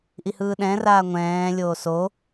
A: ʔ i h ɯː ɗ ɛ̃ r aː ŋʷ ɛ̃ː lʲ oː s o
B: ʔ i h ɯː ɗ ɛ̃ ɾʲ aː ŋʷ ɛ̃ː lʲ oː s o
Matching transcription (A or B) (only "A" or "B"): A